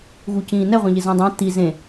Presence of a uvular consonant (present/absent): present